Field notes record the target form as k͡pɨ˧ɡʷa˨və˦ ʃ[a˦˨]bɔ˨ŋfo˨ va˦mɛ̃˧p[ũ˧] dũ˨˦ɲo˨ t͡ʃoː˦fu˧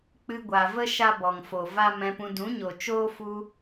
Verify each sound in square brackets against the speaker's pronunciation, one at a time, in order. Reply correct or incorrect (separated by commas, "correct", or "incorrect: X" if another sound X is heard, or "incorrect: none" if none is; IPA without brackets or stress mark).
incorrect: a˦, correct